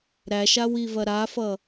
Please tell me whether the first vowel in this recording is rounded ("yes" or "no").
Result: no